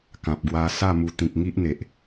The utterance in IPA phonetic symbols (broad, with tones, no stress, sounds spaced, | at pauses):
k ã˨ p̚ ɡ w a˧ s a˥˧ m u˧ t̪ ĩ˨ k̚ ŋ i˦ ʔ n̪ e˨ ʔ